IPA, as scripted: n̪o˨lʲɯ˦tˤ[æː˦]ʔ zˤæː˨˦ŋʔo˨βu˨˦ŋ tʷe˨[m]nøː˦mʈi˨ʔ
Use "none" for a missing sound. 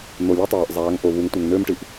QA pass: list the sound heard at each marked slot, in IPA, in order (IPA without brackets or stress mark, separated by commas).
æː˨, ŋ